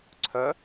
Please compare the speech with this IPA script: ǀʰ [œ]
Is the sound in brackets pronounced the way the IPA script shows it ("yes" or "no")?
yes